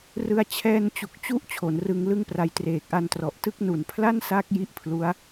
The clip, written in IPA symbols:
r ɯ˧ a̯ t͡ɕʰ ɛː˧ n t͡ɕ u˨˩ k̚ t͡ɕ u˦˥ ʔ t͡ɕʰ o˩˦ n r ɯ˧ ŋ l ɯ˥˩ ŋ p r a˧ j t r eː˨˩ k̚ ʔ a˧ n t r ɔ˨˩ ʔ t ɯ˦˥ k̚ n u˨˩ n pʰ l a˥˩ n s a˦˥ k̚ j i˥˩ ʔ pʰ l u˦˥ a̯

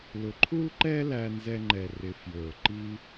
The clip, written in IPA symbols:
l ʊ˩ ǃʰ u˥ l ǃ ɛ˥ l æ˧ n z ɛ˧ ŋ͡ǃ ɛ˩ r ɪ˩ f j ə˞˩ ǃ i˧

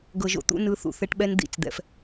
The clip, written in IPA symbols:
ɡ ɤ˨ ʒ o̰˦ t̪ ṵ˦ n ɯ˨˦ θ ṵ˨ θ ɛ˦ ʈ ɓ ɛ˦ n d̪ ḭ˦˨ t͡s d̪ ɛ̰˦ f

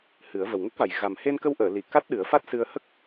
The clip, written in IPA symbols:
h ɨ˨˩˦ ə̯ v ə˨˩ w ŋ ə˦˥ k̚ v a˨˩ j ɣ a˨˩ m h e˧ n k ə˧ w ʔ əː˨˩˨ l i˨˩˨ k a˦˥ t̚ ɗ ɨ˨˩˦ ə̯ f a˦˥ t̚ s ɨ˧ ə̯ h ə˦˥ k̚

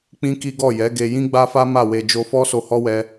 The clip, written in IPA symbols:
k͡p ĩ˦ k i˦ ɡ ɔ˦˨ j ɛ˨˦ ɡ e˧ j ĩ˦ ɡ͡b a˦ f a˦ m a˦˨ w e˧ d͡ʒ o˧ f ɔ˦ s o˧ h ɔ˦ w ɛ˧

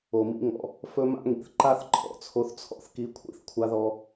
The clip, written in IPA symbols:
o˨ m ḭ˦ ŋ ɔ̰˧ | f ɵ˦ m a̰˦ ŋ ḭ˨ θ ǃ a˦ θ ǃʰ ɔ̰˨ t͡sʰ o˧ θ t͡sʰ ɔ̰˦ θ k i˨˦ kʷʰ ḭ˦ θ kʷʰ a˧ ð ɔ˧

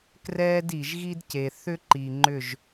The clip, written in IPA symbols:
k r ɛː˦ d i˨ ʒ ɣ i˦ d c e˨ θ ʏ˦ ǃ i˨ ŋ͡ǃ ʏ˦˨ ʒ

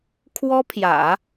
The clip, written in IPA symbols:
kʰ w ɔ˥ pʰ j ä̰˨˩˦

